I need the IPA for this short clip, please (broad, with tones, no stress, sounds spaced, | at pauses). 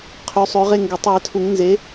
qʰ ø˨˦ sˤ ø˨˦ ʁ e˦˨ ŋ ɡ ɛ˨˩˦ tˤ w ɪ˨˦ tʰ u˨˩˦ ŋ n z e˨˦